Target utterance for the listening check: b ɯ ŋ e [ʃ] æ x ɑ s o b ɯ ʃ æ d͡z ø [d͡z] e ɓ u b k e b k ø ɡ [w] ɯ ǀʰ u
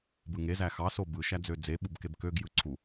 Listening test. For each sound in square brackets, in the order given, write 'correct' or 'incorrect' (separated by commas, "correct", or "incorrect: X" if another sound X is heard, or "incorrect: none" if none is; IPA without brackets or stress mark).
incorrect: z, correct, incorrect: j